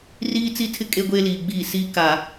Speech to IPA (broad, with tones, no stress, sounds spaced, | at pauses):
r iː˦ t͡s i˦ tʰ ɪ˦ kʼ e˦ ɡʷ eː˦ l iː˨ ɡ͡b iː˦˨ s iː˦ k a˨